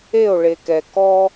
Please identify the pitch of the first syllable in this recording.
falling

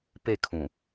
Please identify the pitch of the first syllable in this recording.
falling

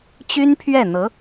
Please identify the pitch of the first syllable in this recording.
high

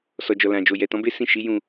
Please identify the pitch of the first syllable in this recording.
low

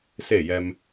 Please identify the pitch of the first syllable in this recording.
falling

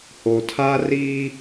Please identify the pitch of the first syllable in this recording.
low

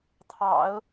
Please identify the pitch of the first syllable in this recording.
low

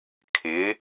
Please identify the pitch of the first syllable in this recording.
rising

